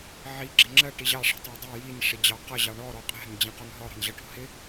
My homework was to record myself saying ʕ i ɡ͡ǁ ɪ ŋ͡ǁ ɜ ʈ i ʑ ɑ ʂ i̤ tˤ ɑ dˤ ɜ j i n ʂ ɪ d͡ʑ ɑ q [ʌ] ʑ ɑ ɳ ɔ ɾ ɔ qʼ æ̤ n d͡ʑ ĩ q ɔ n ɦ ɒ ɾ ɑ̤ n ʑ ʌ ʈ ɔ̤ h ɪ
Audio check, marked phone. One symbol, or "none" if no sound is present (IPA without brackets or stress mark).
ʌ